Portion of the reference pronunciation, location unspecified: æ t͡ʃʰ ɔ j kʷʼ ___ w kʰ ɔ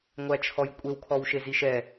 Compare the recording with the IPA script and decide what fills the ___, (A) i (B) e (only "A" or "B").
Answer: B